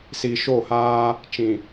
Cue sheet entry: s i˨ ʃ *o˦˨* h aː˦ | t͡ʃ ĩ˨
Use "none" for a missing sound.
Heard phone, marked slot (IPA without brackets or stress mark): o˦˨